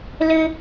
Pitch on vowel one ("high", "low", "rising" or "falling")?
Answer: high